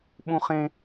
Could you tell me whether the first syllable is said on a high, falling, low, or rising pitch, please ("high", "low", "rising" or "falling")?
high